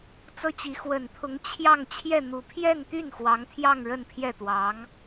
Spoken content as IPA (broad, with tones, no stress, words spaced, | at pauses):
t͡sɤ˥t͡ɕi˧˥ xwə˨˩nt̪ʰʊ˧˥ŋ t͡ɕʰjɑ˥˧ŋ t͡ɕʰjɛ˥˩n̪u˨˩ pʰjɛ˥˧nt̪y˥˩n xwɑ˧˥ŋt̪ʰjɑ˥˧ŋ ɻə˥˧npʰjɛ˥˩t̪wɑ˧˥ŋ